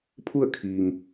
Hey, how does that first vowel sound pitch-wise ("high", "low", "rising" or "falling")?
falling